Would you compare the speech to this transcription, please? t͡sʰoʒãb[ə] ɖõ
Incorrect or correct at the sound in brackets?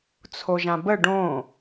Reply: correct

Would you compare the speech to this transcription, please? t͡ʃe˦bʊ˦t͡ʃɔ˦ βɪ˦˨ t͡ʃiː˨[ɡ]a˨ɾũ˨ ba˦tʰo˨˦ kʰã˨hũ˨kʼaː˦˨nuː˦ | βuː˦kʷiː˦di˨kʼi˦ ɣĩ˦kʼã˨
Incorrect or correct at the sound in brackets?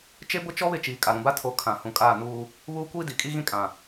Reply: incorrect: kʼ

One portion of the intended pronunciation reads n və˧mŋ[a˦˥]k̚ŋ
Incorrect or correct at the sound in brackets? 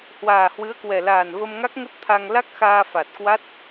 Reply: correct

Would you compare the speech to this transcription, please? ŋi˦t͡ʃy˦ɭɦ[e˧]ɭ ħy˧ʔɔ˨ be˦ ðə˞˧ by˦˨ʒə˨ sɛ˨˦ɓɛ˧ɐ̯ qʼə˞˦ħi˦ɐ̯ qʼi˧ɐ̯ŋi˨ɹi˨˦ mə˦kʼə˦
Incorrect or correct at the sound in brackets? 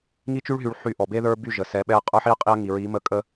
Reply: incorrect: y˧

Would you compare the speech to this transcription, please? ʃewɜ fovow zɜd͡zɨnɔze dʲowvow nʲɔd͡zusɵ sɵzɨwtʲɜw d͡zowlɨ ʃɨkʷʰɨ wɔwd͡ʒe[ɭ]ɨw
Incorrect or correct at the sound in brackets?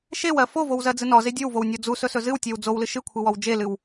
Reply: incorrect: l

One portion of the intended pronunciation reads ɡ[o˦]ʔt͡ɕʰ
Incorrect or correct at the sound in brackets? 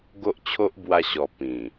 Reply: correct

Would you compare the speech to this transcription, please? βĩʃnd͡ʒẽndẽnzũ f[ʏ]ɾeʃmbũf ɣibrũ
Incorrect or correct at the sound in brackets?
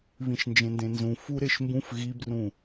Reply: incorrect: u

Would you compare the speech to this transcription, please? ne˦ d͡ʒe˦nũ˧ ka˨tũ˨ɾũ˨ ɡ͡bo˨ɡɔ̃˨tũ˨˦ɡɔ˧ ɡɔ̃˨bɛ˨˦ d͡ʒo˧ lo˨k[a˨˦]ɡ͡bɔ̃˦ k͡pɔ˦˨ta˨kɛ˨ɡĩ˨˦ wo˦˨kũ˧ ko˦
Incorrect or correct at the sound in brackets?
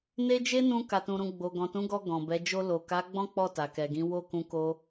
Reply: correct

